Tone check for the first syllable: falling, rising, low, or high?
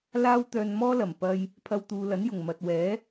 high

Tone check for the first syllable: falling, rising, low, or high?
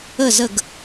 falling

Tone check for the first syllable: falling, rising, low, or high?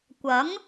rising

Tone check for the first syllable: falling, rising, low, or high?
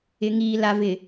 low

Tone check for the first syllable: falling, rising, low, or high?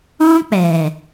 high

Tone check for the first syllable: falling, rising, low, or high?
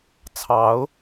rising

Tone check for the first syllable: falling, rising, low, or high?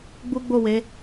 high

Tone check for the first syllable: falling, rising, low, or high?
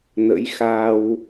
rising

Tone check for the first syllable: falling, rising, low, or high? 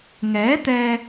rising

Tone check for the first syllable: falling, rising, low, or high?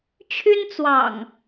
high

